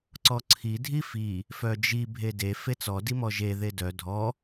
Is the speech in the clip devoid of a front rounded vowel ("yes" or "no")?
no